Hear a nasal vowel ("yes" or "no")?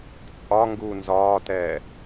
no